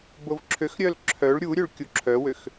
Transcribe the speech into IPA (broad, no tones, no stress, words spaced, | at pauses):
bovǁʰøxɾʲœl ǁʰœɭ ɾʲuɾʲøɭ kʲuǁʰœwøx